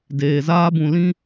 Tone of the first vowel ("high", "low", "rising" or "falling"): low